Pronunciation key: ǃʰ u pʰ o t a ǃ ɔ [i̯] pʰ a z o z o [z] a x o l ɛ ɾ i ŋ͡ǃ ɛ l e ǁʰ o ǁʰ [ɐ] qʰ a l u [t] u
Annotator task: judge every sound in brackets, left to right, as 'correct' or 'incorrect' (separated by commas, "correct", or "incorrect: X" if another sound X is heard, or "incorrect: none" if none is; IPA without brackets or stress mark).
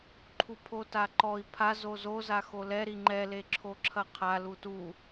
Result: correct, correct, correct, correct